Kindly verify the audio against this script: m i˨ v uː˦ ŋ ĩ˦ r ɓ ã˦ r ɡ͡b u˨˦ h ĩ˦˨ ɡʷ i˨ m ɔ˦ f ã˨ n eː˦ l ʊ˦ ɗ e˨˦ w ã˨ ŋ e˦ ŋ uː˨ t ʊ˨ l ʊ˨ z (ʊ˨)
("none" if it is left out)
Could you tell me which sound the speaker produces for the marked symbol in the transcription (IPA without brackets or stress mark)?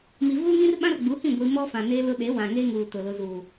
u˨